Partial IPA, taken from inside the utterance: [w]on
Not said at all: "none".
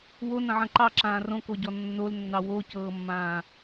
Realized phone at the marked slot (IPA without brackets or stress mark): w